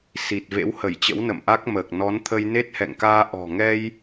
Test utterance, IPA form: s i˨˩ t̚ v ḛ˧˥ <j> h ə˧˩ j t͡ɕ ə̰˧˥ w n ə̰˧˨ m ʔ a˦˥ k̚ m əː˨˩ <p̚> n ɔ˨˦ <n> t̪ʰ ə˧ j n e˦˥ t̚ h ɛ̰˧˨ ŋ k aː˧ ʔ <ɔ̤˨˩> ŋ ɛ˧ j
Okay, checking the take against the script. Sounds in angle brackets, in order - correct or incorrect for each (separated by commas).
incorrect, incorrect, correct, correct